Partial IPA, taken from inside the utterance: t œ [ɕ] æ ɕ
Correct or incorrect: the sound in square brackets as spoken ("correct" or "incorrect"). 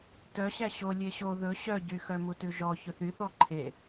correct